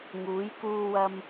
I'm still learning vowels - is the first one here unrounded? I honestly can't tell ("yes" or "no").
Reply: no